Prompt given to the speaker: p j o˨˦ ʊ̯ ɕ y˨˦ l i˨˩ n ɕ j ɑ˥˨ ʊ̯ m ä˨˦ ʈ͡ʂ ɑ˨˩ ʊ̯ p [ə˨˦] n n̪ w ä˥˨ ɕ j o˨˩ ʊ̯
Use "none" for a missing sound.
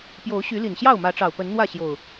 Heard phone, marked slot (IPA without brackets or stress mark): ə˨˦